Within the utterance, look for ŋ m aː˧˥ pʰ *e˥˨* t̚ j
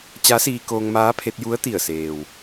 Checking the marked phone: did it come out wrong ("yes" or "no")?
yes